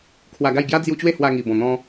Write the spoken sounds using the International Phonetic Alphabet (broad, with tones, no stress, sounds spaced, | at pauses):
kʰ w a˧ ɡ a˥˧ j ɡ j a˦ d͡z j u˧ t͡ɕ w e˥˧ h w a˧ ŋ i˨˩ b ɔ̃˨˩ n̪ ɔ̃˧